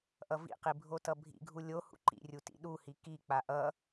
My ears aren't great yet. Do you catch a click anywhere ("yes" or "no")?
yes